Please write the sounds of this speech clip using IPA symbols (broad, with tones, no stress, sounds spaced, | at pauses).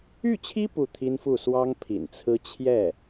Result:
y˥˩ t͡ɕʰ i˥ p u˥˩ t̪ʰ i˥ n f u˥˩ s w ɑ˥ ŋ pʰ ḭ˨˩ n t͡sʰ ɹ̩˥ t͡ɕʰ j ɛ˥˩